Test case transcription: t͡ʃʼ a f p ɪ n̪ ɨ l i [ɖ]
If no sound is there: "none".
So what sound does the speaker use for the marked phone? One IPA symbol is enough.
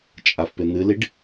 ɖ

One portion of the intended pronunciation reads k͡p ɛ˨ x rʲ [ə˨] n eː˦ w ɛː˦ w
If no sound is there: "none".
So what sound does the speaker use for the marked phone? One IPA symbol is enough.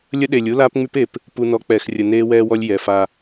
ə˨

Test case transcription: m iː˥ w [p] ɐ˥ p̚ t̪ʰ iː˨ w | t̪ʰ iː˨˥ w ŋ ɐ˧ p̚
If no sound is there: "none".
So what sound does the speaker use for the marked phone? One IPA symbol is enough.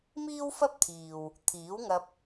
f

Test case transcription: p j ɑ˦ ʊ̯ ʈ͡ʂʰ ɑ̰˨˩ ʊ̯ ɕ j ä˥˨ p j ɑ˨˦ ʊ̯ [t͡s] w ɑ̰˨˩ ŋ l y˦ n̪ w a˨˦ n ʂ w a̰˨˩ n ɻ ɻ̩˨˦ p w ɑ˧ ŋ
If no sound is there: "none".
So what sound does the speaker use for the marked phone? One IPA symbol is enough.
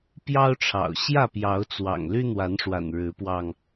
t͡s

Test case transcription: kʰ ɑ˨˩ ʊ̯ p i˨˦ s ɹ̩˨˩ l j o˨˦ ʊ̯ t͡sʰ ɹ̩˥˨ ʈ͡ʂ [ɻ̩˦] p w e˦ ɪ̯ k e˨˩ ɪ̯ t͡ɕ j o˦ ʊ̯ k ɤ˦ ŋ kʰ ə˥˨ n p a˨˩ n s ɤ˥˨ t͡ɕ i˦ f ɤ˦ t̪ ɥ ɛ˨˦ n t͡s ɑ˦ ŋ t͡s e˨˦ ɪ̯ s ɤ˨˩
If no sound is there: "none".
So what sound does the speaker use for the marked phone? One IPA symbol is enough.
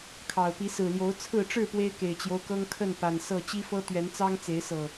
ɻ̩˥˨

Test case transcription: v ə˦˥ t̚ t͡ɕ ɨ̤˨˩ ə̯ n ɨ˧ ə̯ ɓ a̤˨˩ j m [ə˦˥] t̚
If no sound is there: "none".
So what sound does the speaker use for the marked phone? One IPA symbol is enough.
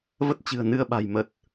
ə˨˩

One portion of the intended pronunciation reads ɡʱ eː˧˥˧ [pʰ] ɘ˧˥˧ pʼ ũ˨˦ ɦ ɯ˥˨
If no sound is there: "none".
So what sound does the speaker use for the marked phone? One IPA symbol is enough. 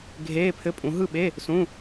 pʰ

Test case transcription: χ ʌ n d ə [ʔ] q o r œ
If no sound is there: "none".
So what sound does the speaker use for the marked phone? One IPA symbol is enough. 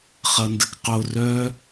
k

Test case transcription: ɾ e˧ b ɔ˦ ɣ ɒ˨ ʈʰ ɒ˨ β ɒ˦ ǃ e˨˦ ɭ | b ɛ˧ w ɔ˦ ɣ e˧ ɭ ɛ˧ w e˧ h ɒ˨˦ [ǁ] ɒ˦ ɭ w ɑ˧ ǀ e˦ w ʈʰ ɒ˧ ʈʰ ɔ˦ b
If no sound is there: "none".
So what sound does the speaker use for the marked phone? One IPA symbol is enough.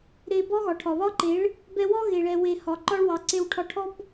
ǃ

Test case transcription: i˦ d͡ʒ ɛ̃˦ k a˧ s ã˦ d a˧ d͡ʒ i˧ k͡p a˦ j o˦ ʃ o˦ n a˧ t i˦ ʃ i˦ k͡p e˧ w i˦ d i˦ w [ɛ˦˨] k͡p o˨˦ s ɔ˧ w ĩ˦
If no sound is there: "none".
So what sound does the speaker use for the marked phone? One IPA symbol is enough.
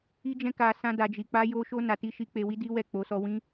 ɛ˦˨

